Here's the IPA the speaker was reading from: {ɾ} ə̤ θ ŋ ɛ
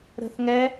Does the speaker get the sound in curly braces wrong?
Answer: no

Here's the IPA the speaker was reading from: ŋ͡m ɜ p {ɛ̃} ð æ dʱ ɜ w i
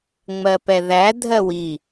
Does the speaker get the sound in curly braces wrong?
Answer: yes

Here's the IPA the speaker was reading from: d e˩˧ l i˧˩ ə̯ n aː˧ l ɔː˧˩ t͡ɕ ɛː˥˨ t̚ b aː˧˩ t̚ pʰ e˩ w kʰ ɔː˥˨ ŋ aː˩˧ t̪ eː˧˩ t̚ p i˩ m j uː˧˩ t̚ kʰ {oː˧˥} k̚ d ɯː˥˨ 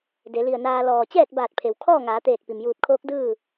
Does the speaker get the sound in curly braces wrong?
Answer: no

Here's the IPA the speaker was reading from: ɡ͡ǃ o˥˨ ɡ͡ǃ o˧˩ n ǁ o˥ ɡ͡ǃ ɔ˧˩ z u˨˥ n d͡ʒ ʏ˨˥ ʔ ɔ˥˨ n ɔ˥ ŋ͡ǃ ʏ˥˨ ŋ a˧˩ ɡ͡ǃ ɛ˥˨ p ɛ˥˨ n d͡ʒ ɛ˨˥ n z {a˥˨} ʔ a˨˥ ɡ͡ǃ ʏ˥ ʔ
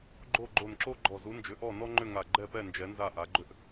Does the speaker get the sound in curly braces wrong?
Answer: no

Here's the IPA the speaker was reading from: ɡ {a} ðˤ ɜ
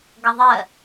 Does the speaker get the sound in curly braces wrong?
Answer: yes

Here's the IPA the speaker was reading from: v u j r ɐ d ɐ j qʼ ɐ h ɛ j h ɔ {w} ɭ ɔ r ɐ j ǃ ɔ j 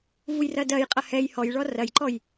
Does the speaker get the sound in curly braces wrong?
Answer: yes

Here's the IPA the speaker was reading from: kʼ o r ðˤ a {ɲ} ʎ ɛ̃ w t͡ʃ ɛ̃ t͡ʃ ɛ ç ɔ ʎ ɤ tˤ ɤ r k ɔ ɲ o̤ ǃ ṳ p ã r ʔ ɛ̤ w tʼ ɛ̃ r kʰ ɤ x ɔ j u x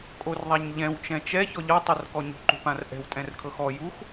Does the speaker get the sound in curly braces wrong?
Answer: no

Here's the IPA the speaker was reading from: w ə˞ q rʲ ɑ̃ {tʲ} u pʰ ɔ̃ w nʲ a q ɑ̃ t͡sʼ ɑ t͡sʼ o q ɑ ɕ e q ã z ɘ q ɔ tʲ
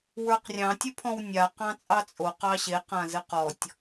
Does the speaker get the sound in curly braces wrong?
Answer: no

